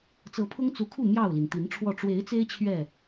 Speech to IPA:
t͡s ɤ˨˦ pʰ ʊ˦ ŋ t͡s u˨˦ kʰ u˥˨ m j ɑ˥˨ ʊ̯ l i˩ n t̪ i˨˦ n ʈ͡ʂʰ w ɔ˥˨ ʈ͡ʂ w e˨˦ ɪ̯ t͡s e˦ ɪ̯ t͡ɕʰ ɥ ɛ˥˨

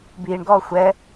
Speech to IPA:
b iː ɳ ɡ ɔː xʷ ɛ

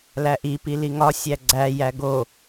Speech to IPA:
l æ ʔ i p i l i ŋ ɒ sʲ æ ɡ͡ǀ æ j æ ɡ o

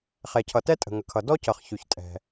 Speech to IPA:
χ ɛ˩ cʰ ʌ˩ t ɛ˥ tʼ ə̤˩ ŋ ə˩ kʰ ʌ˩ d ɔ˥ c ʌ˩ χ ç y˩ ç tʼ ɛ̤˩

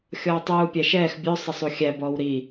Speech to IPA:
xʲ ɔː tˤ uː pʲ æ ʃ ɛː x bʲ ɵ sˤ ə sˤ u xʲ æ b ɔː w ɾ i

